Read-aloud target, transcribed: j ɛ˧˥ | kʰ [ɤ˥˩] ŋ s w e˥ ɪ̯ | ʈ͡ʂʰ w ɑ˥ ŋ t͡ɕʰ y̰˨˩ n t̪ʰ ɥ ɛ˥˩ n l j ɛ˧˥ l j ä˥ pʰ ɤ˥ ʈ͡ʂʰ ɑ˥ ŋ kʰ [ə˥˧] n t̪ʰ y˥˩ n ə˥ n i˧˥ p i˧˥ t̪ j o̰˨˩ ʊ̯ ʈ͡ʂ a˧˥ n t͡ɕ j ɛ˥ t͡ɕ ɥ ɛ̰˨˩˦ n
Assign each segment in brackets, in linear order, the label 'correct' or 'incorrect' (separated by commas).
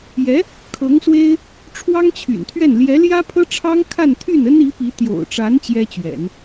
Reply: incorrect, incorrect